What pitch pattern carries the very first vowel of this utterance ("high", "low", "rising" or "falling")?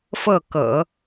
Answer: falling